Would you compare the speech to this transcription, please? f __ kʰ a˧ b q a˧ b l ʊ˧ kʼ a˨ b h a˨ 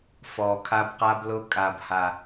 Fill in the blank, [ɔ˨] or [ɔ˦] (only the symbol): ɔ˨